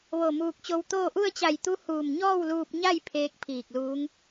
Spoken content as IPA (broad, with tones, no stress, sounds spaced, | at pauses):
ʋ o˧˩ m uː˧ k̚ t͡ɕ o˧ w t̪ oː˥˨ ʔ u˥˨ ə̯ t͡ɕ a˧˩ j t̪ u˧˥ h uː˧˩ m ɲ ɔː˥˨ w l uː˧ p̚ ɲ a˥˨ j pʰ eː˧˥ k̚ pʰ iː˧˩ k̚ l uː˧˥ ŋ